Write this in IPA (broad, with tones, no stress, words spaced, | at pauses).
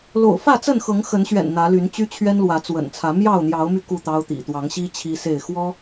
lo̰˨˩ʊ̯fä˥˨t͡sə˥˨nxɤ˨˦ŋ xə˨˦nɕɥɛ̰˨˩n n̪ä˨˦ly˨˦n t͡ɕy˦t͡ɕʰɥɛ˦nlwä˨˦ t͡swə̰˨˩nt͡sʰä˨˦ mjɑ˥˨ʊ̯n̪jɑ˨˦ʊ̯my˧ ku˥˨t̪ɑ˦ʊ̯t̪ḭ˨˩ t̪wɑ˨˦ŋɕi˦ t͡ɕʰi˦se˥˨ɪ̯ xwɔ˦